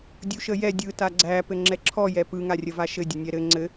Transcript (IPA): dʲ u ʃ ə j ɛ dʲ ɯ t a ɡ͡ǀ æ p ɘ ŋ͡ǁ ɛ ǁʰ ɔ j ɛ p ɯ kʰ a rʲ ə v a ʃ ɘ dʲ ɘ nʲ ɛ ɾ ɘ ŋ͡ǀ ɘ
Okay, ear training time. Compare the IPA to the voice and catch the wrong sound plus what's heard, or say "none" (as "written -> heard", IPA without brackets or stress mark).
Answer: kʰ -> ŋ